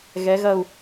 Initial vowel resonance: oral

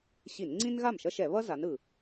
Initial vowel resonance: oral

